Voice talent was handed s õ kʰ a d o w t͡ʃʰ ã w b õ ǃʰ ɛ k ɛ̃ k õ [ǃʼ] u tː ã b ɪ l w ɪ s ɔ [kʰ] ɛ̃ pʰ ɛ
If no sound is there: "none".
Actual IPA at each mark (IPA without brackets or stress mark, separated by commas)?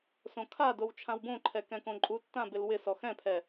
ǃʼ, x